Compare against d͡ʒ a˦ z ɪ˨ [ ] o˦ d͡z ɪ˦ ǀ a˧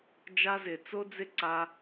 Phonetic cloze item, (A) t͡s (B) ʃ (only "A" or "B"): A